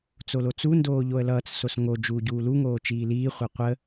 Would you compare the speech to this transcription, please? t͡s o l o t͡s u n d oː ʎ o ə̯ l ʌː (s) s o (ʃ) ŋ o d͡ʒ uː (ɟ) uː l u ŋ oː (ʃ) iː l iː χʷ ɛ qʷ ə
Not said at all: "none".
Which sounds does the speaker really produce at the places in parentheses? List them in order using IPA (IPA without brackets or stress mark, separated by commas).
t͡s, s, ɟ, t͡ʃ